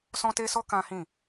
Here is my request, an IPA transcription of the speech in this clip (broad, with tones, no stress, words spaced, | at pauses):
sɔ̃˦te˦sɔ˦ kã˦hĩ˦˨